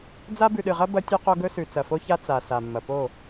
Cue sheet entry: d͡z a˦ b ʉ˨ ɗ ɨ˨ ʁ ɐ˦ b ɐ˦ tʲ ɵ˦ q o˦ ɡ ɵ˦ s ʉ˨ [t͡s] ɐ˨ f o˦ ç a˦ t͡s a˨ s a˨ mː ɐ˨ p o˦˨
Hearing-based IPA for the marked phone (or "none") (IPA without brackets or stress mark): t͡s